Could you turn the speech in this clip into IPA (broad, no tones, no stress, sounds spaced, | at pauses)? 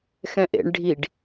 x ɛ̃ ʔ ḛ ɳ ɖʱ i ɖ